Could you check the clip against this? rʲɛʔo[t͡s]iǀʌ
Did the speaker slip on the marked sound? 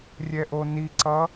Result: yes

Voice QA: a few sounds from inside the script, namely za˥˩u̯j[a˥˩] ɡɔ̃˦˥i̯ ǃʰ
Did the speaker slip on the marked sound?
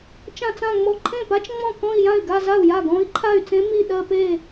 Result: no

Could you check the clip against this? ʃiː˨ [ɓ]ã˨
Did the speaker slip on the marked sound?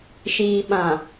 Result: no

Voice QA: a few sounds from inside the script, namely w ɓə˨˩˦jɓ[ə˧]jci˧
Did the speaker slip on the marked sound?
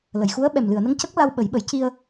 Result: yes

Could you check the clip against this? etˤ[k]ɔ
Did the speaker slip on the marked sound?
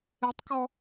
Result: no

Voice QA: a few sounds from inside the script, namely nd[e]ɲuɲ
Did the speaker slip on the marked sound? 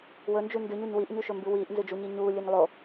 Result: yes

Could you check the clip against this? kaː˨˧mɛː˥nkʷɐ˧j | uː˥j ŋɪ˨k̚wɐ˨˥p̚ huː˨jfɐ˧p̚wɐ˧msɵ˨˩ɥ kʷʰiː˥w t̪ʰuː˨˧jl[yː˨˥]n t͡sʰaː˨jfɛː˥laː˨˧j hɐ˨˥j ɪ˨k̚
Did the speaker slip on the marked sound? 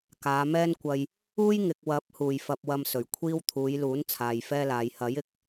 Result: yes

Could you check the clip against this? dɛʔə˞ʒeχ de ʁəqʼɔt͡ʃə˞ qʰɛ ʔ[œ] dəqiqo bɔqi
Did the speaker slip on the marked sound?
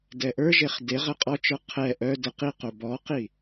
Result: no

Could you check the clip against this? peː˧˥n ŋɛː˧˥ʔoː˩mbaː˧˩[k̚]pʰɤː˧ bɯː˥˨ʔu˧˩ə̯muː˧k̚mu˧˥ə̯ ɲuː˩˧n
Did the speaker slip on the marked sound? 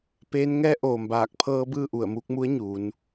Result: no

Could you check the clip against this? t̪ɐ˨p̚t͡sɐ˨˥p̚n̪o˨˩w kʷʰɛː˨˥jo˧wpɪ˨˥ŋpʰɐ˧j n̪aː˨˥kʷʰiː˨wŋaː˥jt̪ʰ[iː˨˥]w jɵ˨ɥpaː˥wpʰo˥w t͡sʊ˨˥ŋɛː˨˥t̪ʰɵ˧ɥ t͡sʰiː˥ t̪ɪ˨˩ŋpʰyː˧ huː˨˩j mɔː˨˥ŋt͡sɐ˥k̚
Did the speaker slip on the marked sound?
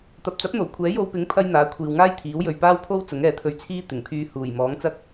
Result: no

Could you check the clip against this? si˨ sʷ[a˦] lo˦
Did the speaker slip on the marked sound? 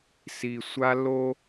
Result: no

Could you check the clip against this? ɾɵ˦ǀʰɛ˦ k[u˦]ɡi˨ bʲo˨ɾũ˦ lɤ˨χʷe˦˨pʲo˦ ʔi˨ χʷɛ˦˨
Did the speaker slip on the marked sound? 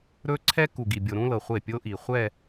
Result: yes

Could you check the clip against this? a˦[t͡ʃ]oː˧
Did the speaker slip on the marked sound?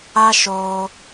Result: yes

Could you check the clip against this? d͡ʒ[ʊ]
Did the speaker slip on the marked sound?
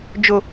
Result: no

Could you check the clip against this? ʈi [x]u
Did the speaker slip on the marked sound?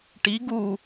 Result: yes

